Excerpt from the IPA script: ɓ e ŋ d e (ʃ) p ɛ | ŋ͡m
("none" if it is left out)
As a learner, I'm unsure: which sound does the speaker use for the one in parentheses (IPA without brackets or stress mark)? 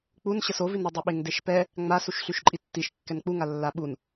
ʃ